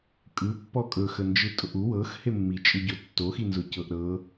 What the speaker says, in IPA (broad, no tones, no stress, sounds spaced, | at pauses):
kʼ ɯ pː ɔ kʼ ɵ x ə n d͡ʒ ɯ tʼ ʊ ʔ u w ɤ x h e mː i t͡ʃʼ ɯ ɟ ʊ tː o x i n z ʊ c ɤ ʔ ɾ ɤ